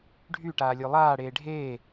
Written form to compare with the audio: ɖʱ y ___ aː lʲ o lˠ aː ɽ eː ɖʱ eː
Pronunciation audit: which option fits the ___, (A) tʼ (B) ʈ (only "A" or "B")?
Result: B